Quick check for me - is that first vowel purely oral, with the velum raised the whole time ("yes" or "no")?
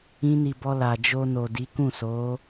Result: no